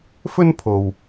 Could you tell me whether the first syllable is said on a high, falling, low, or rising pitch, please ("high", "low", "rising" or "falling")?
high